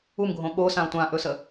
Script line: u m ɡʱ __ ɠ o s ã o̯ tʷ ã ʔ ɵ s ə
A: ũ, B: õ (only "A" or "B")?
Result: B